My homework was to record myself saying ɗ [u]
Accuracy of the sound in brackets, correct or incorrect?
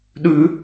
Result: incorrect